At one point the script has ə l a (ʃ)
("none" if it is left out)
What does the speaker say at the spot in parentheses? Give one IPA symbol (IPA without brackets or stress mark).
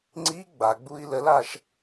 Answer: ʃ